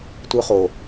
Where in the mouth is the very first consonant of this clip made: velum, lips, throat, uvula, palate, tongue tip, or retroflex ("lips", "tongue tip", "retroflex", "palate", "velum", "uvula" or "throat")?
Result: tongue tip